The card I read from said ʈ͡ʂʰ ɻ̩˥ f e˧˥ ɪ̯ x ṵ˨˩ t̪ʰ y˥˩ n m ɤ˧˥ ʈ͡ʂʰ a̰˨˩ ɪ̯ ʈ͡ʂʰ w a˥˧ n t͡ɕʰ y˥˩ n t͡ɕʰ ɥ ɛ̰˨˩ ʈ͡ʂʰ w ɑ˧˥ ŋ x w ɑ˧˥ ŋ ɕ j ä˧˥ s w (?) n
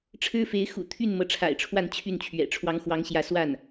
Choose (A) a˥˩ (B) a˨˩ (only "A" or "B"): A